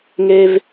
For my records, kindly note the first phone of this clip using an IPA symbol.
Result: ŋ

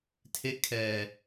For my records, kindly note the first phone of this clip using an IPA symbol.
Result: tʰ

